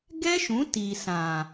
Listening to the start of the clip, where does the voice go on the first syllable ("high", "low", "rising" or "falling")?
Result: high